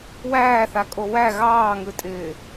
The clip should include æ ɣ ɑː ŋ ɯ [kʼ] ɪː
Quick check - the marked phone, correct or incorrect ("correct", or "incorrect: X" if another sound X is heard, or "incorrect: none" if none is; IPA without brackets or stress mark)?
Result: incorrect: tʼ